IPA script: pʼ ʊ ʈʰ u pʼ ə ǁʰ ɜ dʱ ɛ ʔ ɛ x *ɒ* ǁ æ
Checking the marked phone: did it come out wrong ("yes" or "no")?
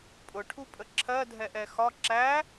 no